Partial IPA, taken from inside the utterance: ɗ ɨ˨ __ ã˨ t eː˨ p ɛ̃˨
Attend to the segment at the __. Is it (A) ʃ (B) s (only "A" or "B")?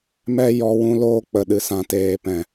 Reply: B